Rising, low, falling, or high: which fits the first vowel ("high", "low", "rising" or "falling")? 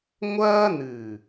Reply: high